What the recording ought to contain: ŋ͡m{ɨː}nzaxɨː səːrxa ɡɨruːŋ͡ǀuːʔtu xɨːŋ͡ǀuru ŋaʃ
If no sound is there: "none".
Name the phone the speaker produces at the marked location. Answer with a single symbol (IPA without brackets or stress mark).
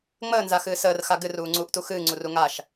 əː